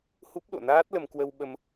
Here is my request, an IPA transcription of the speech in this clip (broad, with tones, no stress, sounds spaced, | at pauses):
h u˦˥ p̚ ɗ o̰˧˨ n aː˦˥ t̚ l ə˧ m k w ə˧ w ɓ ə˧ m